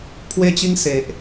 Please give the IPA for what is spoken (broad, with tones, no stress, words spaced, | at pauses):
pʰwe˦t͡ɕi˦ŋ se˨ʔ